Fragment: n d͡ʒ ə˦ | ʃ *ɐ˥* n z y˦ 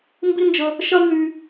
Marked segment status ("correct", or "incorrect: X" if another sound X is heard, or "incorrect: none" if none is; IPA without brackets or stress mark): correct